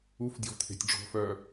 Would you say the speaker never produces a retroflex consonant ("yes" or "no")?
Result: no